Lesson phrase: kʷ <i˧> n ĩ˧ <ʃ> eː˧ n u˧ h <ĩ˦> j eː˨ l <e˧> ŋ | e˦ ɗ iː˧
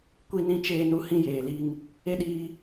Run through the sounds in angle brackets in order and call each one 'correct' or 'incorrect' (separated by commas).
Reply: correct, incorrect, correct, incorrect